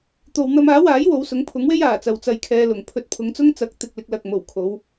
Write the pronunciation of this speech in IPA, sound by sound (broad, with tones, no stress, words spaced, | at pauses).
t̪o˧w n̪ɐ˧maː˨˥waː˨˥j wo˨˧wsʊ˨˥ŋpʰʊ˨˥ŋwe˥j aː˨˩t͡sɐ˨w t͡sɐ˨j kʰɛː˧lʊ˨˩ŋ pʰɵ˨˥t̚pʰʊ˨˧ŋt͡sʊ˥ŋ t͡sɐ˨˥k̚t̪ɪ˨k̚lɪ˧k̚ lɐ˨k̚mo˨˩w kʰo˨˧w